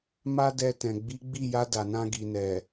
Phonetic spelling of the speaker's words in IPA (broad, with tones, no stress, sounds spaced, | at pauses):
m a˦ d ɛ˧ t ɛ̃˨ ɡ͡b i˨˦ ɡ͡b i˦˨ j a˧ d a˨ n ã˧ ɡ i˨ n ɛ˨